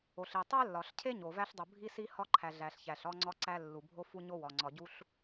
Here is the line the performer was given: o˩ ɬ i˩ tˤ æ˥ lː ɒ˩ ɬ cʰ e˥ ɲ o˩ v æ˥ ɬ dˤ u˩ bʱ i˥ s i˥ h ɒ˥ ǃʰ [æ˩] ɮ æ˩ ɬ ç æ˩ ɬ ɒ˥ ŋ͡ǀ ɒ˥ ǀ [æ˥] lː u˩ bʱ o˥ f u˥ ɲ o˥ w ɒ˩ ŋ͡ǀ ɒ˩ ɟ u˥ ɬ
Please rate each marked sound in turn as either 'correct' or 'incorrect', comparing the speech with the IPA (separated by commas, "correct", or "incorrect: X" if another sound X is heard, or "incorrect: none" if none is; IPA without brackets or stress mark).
correct, correct